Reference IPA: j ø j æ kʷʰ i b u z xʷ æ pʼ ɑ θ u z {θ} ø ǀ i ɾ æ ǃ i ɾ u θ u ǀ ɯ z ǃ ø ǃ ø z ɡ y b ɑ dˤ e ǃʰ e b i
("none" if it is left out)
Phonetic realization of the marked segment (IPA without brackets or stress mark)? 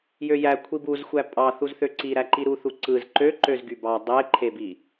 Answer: θ